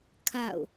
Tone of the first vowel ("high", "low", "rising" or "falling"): falling